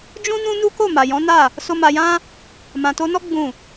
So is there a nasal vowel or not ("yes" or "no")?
yes